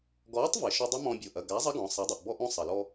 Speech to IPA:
ɡ ɔː˨˥ tˤ v e˩ ʃ o˧ dˤ ɐ˦˥ m ɔ̃˧ bʲ o˩˧˩ ʔ ɐ˩˧˩ ɡ a˨˥ zˤ ɐ˦˥ ɡ ɔ̃˩˧ sˤ a˩˧ dˤ o˩ ʔ b ɔ˧ ʔ õ˧ sˤ ɐ˩ l ɔ˧

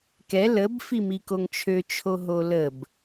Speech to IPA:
k ɛ l ə b f i m i k o ŋ t͡ʃʰ ø t͡ʃʰ o ɦ o l ə b

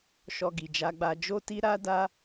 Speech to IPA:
ʃ ɔ˧ ɡ i˨ d͡ʒ a˧ ɡ͡b a˧ d͡ʒ o˦ t i˦ ɾ a˦ d a˦

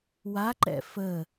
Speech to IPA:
w a ǃ ɛ̰ f ə

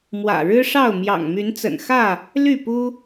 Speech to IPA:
m w ä̰˨˩ ɻ ɻ̩˦ ʂ ɑ˥˨ ʊ̯ m j ɑ̰˨˩ ŋ m y˨˦ n t͡s ə̰˨˩ n x ä˥˨ | l y˥˨ p u˦

